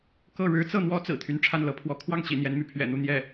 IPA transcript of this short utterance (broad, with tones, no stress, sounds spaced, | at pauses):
k ɤ˥˩ ɻ ɻ̩˧˥ t͡s ɤ˥˩ n̪ w ɔ˥ t͡s ɹ̩˨˩ t̪ʰ y˧˥ n ʈ͡ʂʰ a˥˩ n l ɤ˧˥ pʰ w ɔ˧˥ kʰ w ɑ˥˩ ŋ t͡ɕ ḭ˨˩ n̪ j ɛ˧˥ n m y˧˥ pʰ ɥ ɛ̰˨˩ n̪ u˥˧ n̪ j ɛ˥˩